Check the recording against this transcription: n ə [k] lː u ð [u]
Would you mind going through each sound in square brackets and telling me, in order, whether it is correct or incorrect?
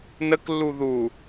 correct, correct

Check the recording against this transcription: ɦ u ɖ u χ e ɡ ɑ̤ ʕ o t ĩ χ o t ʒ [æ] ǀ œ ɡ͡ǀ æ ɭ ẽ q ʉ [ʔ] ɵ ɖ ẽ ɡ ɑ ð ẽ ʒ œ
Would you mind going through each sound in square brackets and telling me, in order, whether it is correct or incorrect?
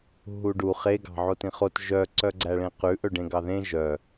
incorrect: œ, correct

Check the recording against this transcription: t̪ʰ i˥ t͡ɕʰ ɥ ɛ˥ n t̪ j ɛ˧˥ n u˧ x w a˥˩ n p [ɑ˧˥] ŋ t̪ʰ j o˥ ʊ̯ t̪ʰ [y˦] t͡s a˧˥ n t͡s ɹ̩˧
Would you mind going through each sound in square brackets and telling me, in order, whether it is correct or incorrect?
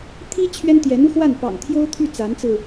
incorrect: ɑ̰˨˩, incorrect: y˥˩

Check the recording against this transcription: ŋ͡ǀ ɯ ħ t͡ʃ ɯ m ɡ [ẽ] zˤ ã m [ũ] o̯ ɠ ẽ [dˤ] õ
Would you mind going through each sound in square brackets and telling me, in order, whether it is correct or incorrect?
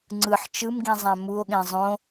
incorrect: ĩ, incorrect: u, incorrect: zˤ

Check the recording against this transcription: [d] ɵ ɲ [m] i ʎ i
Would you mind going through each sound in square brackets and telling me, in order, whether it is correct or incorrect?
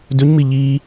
correct, correct

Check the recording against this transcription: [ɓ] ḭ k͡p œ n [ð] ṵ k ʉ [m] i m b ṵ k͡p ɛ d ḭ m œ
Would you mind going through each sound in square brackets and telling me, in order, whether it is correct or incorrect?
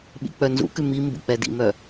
correct, incorrect: z, correct

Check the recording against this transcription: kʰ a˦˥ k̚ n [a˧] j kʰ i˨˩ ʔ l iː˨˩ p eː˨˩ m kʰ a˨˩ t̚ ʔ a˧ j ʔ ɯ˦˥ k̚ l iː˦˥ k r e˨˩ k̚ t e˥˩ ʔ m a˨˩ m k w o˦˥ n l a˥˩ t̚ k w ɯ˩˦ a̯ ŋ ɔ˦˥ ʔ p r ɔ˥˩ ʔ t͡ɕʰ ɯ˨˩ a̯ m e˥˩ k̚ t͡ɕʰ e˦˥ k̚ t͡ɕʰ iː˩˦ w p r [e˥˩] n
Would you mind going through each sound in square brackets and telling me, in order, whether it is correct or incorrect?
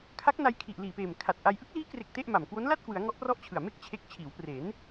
correct, incorrect: e˩˦

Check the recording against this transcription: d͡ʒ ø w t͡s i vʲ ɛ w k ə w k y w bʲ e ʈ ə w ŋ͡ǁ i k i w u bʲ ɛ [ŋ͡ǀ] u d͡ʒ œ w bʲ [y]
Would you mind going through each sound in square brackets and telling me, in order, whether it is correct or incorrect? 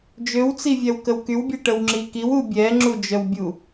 incorrect: ŋ͡ǁ, incorrect: u

